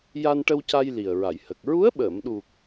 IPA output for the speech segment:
j a˧ n ʈ ə˧ w c a˧ j l i˨˩ ə̯ ɹ a˨˩˨ j h ə˨˩ k̚ ɹ u˧˥ ə̯ ɓ əː˨˩˨ m ɗ u˨˩ k̚

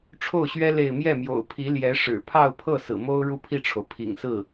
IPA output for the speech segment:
ʈ͡ʂʰ o˥˩ ʊ̯ ɕ ɥ ɛ˥ l e˥˧ ɪ̯ m j ɛ˥˩ m j o̰˨˩ ʊ̯ pʰ i˧˥ l j ɛ˧˥ ʂ ɻ̩˨˩ pʰ ɑ˥˧ ʊ̯ pʰ ɤ˥˩ s ɹ̩˨˩ m o˥ ʊ̯ ɻ u˥˧ pʰ i˥˩ ʈ͡ʂʰ o˩ ʊ̯ pʰ ḭ˨˩ ŋ s ɹ̩˥˩

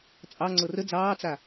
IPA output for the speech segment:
t͡sʼ ɑ ŋ͡ǀ ɤ r ə d͡z ɑː t͡s a

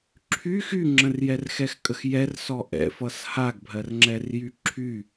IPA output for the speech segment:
ǁʰ y x y ŋ͡ǁ ə̃ r j ɛ r x ɛ x kʼ ə x j ɛ r s ɔ ʔ ɛ̰ f ʌ s h a ɡ bʱ ɜ r ŋ͡ǁ ɛ r j y ǁʰ y

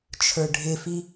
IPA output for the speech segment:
t͡ʃʰ ə˞ ɖʱ ɪ f i

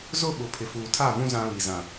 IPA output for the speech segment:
z ʊ˦˨ ɓ ʊ˨ pʰ ɪ˨ f uː˨ tʰ a˦˨ v ũ˦ z ã˦ β i˨ z ã˨

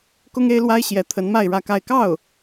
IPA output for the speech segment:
k ʊ˥ ŋ e˥ ɪ̯ l w a˥ ɪ̯ ɕ j ɛ˧˥ t̪ʰ ə˧˥ n m a˥˧ ɪ̯ ɻ ä˥˧ k a˥˧ ɪ̯ k ɑ˥˩ ʊ̯

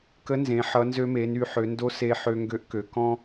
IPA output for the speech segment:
k ə˧˥ n z ẽ˩˧ ħ ʌ˩˧ n z ø˧ m e˩˧ n y˩˧ ħ ø˩˧ n d o˧˥ s e˧ ħ ø˧ ŋ ɡ ø˧˥ ʔ k ø˩˧ k ɔ̃˧

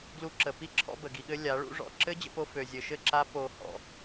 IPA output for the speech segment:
ɡ l u˧ ǁ ə˨ p i˦ ǁʰ ɔ̰˧ b ə˨ ɡ i˧ ɠ ɘ˦ lʲ a˨˦ ɭ ṵ˦ ʐ ɔ̰˧ ǁ ɘ˦ d͡ʑ ə̰˧ p o˧ f ø˨ zʲ ɘ˨ ʃ ɘ˦˨ ǁ a˦ p o˧ h ɔ̰˨

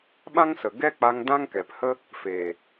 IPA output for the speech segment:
ɓ ã˦ ŋ s ə˨ ɡ ɛ˦ k͡p a˧ ŋ d ã˦ ŋ k ɛ˨ p h ə˦ | f eː˨

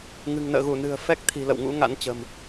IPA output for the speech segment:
ŋ ɨ̤˨˩ ŋ n ə̰ː˧˨ ɣ u˧˩ n ɨ̤˨˩ ə̯ f ɛ˦˥ k̚ t̪ʰ i̤˨˩ l ə̰˧˨ w ŋ ṵ˧˥ ŋ a̰˧˥ n t͡ɕ ə̤˨˩ m

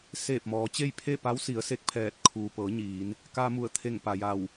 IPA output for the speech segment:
s eː˧˩ p̚ m ɔː˩˧ t͡ɕ e˥˨ j pʰ e˥˨ p a˧˥ w s i˩˧ ə̯ s e˧ k̚ pʰ ɛː˧˩ t̚ kʰ uː˩ p ɤː˩˧ ɲ iː˩˧ n | k aː˧ m u˧˩ ə̯ t̪ʰ e˧˩ ŋ p a˩ j a˧˩ w

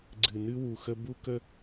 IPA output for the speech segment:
ɡ͡ǀ ɨ˨ n ɨ˦ w u˨ x ə˦ b u˦ k ə˦

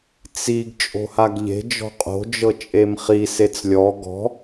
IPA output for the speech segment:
t͡s i ɡ t͡ʃʼ o̤ h a ɡ ʎ e̤ d͡ʒ ɔ̤ qʼ o̤ d͡ʒ ɤ t͡ʃʼ e m χ i s e t͡s lʲ ɔ ɡ ɔ̤

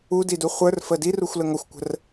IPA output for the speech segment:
u d i d u χʷ ə˞ r f ə d i r u xʷ l ə ŋ ʌ xʷ kʷ ə̤ r

